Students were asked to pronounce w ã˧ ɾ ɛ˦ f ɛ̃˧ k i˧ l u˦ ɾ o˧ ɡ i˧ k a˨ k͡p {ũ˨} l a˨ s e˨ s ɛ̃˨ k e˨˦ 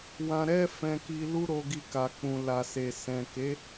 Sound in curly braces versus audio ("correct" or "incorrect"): correct